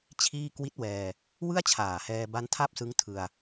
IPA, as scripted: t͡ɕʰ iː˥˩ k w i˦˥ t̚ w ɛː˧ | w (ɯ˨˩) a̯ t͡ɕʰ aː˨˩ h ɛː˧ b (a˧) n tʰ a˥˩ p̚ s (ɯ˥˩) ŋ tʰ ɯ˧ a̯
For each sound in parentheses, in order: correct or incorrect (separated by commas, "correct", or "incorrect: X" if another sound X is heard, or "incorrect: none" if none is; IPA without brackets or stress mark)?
incorrect: ɯ˥˩, incorrect: a˦˥, incorrect: ɯ˦˥